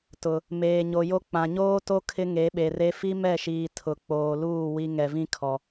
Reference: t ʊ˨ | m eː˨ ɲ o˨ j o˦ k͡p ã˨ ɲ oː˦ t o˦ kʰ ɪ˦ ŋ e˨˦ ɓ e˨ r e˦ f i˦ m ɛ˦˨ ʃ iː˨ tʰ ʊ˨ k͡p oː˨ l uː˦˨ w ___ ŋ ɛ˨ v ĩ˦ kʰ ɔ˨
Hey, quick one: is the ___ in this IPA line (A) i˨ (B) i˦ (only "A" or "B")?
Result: B